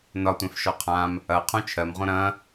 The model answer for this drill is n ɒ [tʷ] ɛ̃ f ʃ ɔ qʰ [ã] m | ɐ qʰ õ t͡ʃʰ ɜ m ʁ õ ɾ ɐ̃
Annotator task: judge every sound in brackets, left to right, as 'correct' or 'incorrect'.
correct, correct

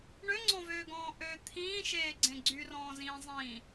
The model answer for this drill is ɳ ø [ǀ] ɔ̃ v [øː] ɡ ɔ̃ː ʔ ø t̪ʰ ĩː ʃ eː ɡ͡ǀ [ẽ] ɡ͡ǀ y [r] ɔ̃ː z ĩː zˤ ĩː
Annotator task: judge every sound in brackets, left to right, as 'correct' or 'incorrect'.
incorrect, correct, correct, correct

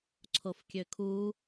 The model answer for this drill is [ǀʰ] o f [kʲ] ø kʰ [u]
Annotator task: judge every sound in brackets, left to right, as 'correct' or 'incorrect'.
correct, correct, correct

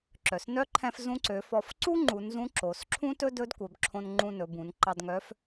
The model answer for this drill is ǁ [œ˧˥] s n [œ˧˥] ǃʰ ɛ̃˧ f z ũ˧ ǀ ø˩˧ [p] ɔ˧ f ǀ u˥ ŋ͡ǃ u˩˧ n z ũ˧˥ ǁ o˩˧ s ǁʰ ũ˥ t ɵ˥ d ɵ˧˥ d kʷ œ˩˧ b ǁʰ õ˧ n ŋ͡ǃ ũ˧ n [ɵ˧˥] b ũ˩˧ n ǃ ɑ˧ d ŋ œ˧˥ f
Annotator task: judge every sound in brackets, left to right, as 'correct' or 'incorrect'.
incorrect, correct, incorrect, incorrect

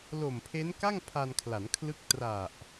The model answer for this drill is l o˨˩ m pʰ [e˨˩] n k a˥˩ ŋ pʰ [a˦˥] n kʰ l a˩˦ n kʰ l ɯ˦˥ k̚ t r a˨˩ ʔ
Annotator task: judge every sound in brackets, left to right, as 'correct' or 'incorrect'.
incorrect, incorrect

